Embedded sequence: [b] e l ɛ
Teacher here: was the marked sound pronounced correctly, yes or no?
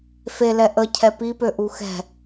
no